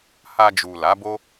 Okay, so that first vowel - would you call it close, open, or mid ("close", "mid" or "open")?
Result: open